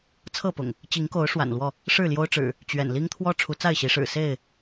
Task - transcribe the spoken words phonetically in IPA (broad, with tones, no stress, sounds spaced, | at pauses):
t͡sʰ ɤ˥˨ p ʊ̰˨˩ ŋ | t͡ɕ i˨˦ ŋ k o˨˦ ʊ̯ ʂ w a̰˨˩ n l w ɔ˥˨ | ʂ ɻ̩˥˨ l j o˦ ʊ̯ ʈ͡ʂ ɻ̩˨˩ | t͡ɕ ɥ ɛ̰˨˩ n l i˦ ŋ t̪ʰ w ɔ˦ ʈ͡ʂʰ u˨˦ t͡s a˥˨ ɪ̯ ɕ i˨˦ ʂ ɻ̩˨˩ s e˥˨ ɪ̯